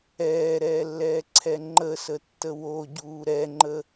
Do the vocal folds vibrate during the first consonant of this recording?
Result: yes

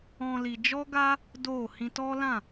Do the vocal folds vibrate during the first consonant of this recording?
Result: yes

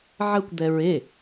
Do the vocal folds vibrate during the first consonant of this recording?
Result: yes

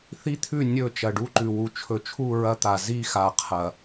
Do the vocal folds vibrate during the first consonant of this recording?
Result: no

